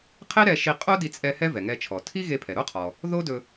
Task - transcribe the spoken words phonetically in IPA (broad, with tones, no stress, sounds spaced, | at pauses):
qʰ e˥ ɾ ɛ˧ ʃ i˧ qʼ o˥ d i˧ t͡sʼ ɛ˧ h ɛ˥ v ɛ˩ ŋ ɛ˧ t͡ʃʰ ɔ˩ tʰ i˥ ɣ e˧ pʰ ɛ˩ ɾ o˥ qʰ ɔ˩ | ð o˥ d ɵ˧